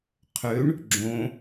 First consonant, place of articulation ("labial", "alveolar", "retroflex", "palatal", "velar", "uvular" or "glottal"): uvular